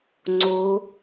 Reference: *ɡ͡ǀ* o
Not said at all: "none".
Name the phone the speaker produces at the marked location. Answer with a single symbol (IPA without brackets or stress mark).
ŋ͡ǀ